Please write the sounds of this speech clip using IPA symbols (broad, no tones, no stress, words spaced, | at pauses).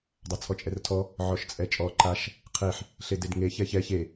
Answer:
dˤat͡sʰɔt͡ʃʼɛrtʰɔ | ʕɔʃt͡sʼɛt͡ʃʼɔ ǃaʃ | qʰeħ | ɬededŋe çɛçɛ çe